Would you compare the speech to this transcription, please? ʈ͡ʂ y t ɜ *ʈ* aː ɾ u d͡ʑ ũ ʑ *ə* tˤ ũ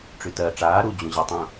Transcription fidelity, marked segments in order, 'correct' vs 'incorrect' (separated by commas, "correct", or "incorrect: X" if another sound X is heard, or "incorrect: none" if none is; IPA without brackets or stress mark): incorrect: ʈ͡ʂ, correct